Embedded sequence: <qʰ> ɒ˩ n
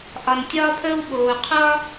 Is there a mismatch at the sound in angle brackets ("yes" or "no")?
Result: yes